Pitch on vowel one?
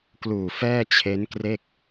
low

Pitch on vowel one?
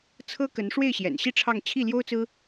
high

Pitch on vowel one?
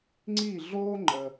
falling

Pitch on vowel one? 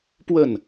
falling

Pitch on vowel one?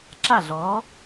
falling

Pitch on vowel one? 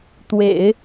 low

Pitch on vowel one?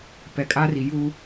low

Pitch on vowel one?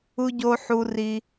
high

